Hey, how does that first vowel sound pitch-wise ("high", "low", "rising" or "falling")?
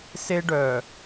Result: high